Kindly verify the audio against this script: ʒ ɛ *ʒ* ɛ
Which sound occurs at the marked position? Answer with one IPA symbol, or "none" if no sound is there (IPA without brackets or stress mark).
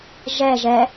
ʒ